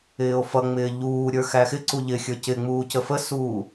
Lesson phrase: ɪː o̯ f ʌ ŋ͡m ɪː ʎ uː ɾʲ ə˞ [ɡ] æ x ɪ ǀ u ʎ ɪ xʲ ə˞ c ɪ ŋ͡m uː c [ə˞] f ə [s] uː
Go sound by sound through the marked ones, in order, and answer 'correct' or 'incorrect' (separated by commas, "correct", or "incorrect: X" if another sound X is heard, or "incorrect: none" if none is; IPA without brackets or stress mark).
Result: incorrect: x, incorrect: ə, correct